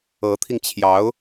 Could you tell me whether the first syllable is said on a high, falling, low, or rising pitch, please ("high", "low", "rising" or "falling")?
rising